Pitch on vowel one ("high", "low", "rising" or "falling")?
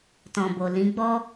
low